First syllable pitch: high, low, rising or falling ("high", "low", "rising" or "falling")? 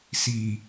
low